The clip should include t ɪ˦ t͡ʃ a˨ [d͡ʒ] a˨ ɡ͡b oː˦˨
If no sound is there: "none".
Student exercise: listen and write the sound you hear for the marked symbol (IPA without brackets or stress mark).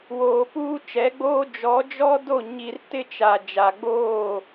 d͡ʒ